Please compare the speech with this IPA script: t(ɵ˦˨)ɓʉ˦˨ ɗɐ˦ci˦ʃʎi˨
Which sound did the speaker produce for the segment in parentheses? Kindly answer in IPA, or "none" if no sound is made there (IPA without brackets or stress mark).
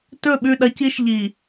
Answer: ɵ˦˨